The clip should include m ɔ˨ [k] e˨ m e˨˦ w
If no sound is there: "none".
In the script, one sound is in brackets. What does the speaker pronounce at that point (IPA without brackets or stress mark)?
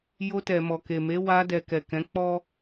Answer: k